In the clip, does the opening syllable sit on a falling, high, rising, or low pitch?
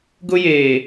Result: high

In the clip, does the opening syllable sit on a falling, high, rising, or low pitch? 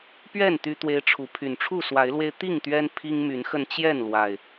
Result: falling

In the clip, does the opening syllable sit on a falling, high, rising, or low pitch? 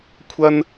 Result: high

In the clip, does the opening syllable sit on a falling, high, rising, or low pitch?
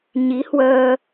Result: rising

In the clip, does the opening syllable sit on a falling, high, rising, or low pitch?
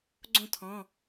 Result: falling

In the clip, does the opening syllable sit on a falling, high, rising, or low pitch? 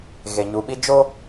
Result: low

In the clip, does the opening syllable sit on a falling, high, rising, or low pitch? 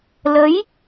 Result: rising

